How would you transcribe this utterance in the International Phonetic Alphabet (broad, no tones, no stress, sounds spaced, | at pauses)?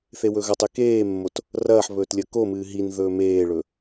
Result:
θ e w ɵ ɣ ɐ tˤ e k eː mː o t | r ɐː ħ β ɵː t lʲ ɐ k o m ɨː ɦ i n ð ɵː m eː ɭ ɵ